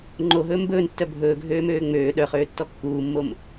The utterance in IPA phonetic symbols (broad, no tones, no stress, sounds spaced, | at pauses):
ŋ͡ǃ o ɦ ɵː m b ɵː n tː œ bʱ ɵː ɡʱ øː m øː ŋ͡m øː ɗ œ χ øː tː ɔ kː uː mː o m